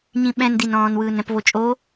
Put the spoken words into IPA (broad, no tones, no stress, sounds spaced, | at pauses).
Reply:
ɲ ĩ ɓ ɛ̃ n d i n ɔ̃ː n w ɯː n ɾ ɛ̃ p v o t͡ʃʼ o